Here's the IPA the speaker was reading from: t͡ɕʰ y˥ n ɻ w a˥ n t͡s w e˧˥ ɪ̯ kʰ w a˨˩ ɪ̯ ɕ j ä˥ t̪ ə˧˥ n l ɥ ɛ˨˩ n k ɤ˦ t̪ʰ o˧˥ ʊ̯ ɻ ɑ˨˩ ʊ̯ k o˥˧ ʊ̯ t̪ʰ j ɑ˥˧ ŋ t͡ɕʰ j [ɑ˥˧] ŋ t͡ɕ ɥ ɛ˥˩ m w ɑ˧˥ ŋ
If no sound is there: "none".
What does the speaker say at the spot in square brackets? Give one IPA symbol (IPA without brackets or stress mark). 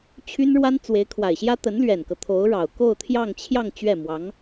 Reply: ɑ˥˧